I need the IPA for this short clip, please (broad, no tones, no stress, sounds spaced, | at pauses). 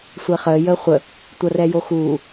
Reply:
sʷ e χ əː j əː χʷ ə | tʷ ɐ r ɛ j o x uː